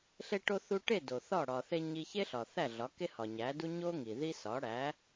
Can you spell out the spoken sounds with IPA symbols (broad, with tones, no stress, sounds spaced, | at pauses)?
ɬ e˧ ʈ o˧ θ u˧ ʈ e˥˩ d o˩ θ ɒ˥˩ ɽ ɒ˩ θ e˧ ɲ i˧ ç e˥ ɬ ɒ˩ θ æ˥˩ ɮ ɒ˩˥ k e˥ h ɒ˩ ɲ æ˩˥ d u˥ ɲ o˥ ŋ i˩ ð i˥ s ɒ˩˥ ɽ æ˩˥